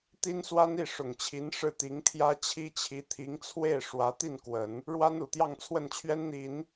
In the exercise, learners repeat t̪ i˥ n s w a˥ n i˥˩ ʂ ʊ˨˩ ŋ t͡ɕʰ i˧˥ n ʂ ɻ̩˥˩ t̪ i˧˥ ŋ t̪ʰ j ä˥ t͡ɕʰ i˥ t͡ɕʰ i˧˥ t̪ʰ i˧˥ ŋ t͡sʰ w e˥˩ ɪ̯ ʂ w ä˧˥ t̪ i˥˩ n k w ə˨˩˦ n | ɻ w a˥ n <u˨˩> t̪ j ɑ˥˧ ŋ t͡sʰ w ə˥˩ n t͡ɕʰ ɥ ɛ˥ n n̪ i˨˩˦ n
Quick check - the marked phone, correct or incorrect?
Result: correct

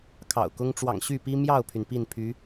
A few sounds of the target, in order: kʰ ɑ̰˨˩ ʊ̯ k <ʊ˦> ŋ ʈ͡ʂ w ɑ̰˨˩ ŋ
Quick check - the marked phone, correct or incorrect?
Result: correct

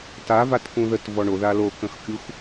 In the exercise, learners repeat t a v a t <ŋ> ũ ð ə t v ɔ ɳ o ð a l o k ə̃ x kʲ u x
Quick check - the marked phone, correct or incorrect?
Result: incorrect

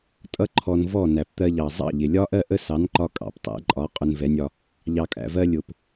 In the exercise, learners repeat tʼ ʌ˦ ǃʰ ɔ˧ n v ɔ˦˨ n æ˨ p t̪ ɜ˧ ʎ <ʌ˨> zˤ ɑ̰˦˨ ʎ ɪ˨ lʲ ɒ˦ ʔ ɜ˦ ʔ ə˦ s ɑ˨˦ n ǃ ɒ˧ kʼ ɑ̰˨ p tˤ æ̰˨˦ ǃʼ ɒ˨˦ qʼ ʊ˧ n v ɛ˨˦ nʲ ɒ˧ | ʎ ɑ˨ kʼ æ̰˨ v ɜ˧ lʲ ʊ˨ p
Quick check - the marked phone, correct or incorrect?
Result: incorrect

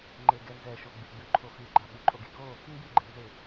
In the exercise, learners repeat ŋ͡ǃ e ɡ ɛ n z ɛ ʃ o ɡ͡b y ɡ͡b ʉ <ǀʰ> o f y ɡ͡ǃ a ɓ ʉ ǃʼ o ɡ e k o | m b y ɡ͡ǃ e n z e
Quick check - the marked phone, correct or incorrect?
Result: incorrect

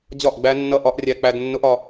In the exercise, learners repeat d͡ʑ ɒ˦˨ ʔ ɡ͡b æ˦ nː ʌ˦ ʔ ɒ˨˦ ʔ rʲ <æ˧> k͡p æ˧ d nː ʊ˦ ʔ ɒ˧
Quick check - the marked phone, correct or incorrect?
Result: correct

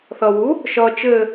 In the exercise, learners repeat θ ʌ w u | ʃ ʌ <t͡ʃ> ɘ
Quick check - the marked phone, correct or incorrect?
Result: correct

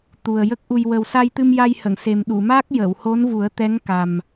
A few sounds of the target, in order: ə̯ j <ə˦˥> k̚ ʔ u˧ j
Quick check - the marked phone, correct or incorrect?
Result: correct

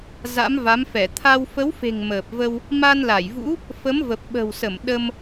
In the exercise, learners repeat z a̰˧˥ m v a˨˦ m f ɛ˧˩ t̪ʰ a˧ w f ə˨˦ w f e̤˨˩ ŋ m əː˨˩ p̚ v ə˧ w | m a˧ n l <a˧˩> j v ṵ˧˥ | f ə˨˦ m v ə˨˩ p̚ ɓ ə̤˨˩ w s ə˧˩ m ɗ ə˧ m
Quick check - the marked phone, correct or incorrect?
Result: correct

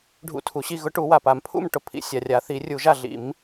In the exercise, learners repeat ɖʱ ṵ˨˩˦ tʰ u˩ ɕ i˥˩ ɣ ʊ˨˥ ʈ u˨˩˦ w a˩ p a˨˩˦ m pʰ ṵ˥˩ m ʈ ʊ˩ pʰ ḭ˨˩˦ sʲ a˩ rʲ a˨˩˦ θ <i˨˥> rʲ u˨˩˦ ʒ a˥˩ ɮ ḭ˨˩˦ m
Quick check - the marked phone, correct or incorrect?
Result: incorrect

